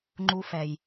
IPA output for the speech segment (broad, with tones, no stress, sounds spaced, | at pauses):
ŋ͡ǃ u˧ f ɛ˨ j